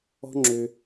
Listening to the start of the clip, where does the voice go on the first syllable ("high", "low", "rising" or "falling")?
high